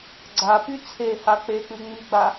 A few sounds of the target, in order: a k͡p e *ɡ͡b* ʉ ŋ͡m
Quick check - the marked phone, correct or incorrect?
incorrect